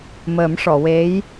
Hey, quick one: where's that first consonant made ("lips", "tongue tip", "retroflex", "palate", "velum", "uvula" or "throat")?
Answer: lips